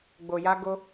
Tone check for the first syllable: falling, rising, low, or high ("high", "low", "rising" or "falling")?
low